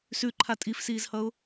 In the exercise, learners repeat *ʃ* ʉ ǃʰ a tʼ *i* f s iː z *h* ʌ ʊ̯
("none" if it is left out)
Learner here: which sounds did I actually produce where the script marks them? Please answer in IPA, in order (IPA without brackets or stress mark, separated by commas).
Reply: s, i, h